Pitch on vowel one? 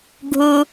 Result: high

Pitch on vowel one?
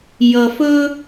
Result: low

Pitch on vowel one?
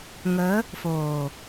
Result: rising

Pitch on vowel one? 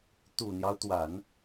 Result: low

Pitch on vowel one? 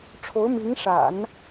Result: rising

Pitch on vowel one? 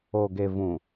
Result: low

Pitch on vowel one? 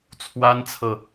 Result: high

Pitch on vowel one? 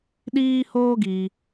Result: high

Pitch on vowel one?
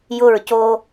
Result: falling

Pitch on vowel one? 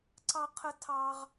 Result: high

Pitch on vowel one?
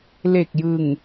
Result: low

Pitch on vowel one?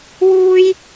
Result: high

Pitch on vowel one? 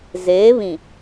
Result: rising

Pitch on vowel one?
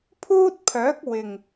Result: high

